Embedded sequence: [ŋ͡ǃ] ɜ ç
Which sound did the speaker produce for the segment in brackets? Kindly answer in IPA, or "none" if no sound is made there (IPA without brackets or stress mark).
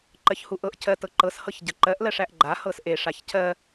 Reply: ǃ